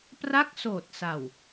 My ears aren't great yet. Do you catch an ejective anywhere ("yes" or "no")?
no